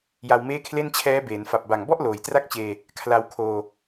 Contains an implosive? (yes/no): no